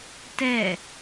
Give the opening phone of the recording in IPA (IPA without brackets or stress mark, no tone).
t